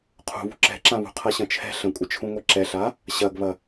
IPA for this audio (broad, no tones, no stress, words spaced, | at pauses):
qʰṳβṳ ǁɛ̤ǁãβṳ qʰɐɕɐ̃t͡ʃʰɛ̤ ɬə̃kʷʼət͡ʃʰũ ŋʷɛǁɛɬa | ɕɐɡβɐ